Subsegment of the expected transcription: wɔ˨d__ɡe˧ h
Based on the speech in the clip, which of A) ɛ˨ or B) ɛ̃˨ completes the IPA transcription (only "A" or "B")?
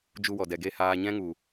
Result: A